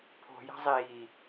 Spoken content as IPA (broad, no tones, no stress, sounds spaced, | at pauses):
pʰ o̤ j a̤ zˤ iː